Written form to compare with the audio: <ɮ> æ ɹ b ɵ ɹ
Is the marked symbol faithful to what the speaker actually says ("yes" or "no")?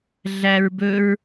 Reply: yes